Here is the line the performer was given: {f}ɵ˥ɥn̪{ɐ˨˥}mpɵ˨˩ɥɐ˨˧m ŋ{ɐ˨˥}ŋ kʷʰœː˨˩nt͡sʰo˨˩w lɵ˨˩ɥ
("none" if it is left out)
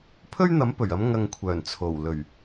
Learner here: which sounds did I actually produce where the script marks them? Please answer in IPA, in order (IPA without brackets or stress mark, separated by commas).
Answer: pʰ, ɐ˨˥, ɐ˨